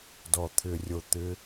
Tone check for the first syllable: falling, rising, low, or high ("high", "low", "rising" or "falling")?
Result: low